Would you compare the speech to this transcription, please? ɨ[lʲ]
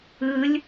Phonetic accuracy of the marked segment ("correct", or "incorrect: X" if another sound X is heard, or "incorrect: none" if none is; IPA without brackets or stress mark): correct